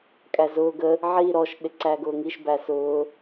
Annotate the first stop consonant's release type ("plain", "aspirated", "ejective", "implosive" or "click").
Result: ejective